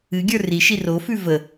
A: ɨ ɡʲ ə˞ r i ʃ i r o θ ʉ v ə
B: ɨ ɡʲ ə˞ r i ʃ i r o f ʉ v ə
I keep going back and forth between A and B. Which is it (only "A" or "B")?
B